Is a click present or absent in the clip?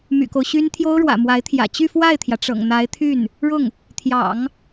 absent